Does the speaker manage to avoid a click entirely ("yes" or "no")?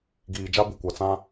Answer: yes